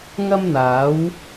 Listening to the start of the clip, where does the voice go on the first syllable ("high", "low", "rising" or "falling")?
high